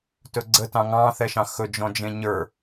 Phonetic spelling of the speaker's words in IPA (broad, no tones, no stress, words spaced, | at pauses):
tɵɡ͡ǀə tɑ̃ŋɑ̃ θɛʃɑ̃xɵ d͡ʒɔ̃d͡ʒẽɲə˞